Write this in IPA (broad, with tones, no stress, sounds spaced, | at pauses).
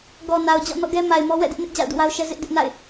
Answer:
ɡ ɔ˨ n a˨ ʊ̯ d͡ʑ ɔ̰˦˨ n ɔ̰˦˨ ɡ ɛ˦ m a˨ ɪ̯ m ɔ˦ w ɛ̰˦˨ d ɪ˦ ʔ n ɪ˦ ʔ d͡ʑ a̰˦˨ ʊ̯ d ṵ˦˨ w a˦ ʊ̯ ʃ ɛ˦ z ɪ˦ ʔ d ɪ˦ ʔ n a̰˦˨ ɪ̯